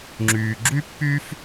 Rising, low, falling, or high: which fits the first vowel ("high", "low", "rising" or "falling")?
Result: low